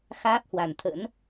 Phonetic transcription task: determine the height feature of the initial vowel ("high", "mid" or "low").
low